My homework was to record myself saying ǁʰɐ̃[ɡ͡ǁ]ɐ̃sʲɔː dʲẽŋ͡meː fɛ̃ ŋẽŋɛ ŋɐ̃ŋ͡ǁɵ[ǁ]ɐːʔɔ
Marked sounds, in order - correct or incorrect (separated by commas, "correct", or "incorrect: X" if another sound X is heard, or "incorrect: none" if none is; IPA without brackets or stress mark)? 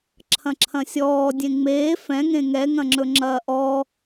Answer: incorrect: ǁʰ, incorrect: ŋ͡ǁ